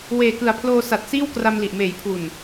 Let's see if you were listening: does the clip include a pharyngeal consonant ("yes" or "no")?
no